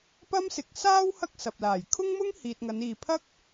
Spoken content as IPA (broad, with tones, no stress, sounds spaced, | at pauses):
p ɐ˥ m s ɪ˨˥ k̚ s aː˥ w h ɐ˥ k̚ s ɐ˨ p̚ l aː˨˩ j kʰ ʊ˥ ŋ m ʊ˥ ŋ h iː˨ t̚ ŋ ɐ˨˧ n iː˨ pʰ ɐ˥ k̚